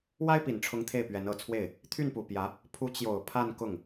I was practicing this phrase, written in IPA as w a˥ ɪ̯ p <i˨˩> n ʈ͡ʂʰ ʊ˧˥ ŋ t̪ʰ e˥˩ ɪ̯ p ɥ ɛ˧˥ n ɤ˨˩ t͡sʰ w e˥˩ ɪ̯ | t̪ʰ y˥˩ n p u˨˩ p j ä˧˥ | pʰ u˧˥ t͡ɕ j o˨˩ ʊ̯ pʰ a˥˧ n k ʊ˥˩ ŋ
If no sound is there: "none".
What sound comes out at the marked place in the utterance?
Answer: i˨˩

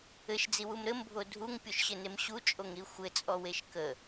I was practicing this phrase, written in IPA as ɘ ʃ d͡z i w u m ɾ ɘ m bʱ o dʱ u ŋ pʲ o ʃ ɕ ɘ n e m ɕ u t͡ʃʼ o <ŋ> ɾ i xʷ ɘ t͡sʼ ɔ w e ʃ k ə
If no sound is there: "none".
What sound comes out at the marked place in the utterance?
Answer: ŋ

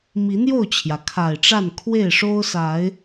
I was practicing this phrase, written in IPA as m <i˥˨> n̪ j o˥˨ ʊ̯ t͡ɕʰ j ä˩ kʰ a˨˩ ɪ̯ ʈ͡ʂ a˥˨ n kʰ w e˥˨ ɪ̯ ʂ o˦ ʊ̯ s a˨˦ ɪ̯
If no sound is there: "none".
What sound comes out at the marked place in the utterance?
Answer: i˨˦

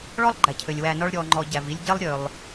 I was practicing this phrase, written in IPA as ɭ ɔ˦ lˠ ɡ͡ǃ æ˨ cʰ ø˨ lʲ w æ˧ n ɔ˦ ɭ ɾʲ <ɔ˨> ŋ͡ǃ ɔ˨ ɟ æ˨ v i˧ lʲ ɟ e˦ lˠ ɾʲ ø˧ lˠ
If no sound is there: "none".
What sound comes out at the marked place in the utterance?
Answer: ɔ˨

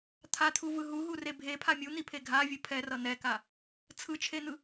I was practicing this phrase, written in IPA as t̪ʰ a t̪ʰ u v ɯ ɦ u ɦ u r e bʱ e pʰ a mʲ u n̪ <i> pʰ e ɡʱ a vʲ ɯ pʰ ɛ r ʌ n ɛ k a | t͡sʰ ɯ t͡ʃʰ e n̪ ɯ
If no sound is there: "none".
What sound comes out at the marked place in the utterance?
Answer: i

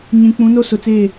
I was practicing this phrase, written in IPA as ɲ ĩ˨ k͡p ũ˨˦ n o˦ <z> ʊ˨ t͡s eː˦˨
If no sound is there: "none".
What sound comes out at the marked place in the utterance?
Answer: s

